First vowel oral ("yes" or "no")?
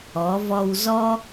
yes